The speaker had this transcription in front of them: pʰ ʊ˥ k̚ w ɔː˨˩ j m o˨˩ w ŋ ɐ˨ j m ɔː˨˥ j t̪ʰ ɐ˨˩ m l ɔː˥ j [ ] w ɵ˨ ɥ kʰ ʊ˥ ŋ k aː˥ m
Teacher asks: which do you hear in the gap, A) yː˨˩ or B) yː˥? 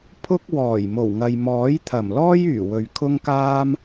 A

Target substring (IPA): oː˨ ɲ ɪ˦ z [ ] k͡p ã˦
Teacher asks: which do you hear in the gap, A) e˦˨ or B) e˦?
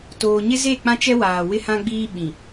A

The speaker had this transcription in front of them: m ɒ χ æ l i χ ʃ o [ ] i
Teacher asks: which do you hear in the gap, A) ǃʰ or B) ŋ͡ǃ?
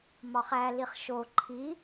A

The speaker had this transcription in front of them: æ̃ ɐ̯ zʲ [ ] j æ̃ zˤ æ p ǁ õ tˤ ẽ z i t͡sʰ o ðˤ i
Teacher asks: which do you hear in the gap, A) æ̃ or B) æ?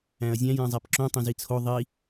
A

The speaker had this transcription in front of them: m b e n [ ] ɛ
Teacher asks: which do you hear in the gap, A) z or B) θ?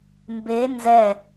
A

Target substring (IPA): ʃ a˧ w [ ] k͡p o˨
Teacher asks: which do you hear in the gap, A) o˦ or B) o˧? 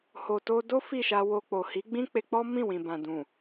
B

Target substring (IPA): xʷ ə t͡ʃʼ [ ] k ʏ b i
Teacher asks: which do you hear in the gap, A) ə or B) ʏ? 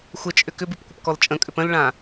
B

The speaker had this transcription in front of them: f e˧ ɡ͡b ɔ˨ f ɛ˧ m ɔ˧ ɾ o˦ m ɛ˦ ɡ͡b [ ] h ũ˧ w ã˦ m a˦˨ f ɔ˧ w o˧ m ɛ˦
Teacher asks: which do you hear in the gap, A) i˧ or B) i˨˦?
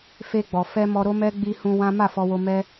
A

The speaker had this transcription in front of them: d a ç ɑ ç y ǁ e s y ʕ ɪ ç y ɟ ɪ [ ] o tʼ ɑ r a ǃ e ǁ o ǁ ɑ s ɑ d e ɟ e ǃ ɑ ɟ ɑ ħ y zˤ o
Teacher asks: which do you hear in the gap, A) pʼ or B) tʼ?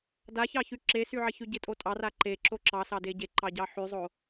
B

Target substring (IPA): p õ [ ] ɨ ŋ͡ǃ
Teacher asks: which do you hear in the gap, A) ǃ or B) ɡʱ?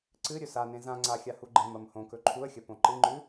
A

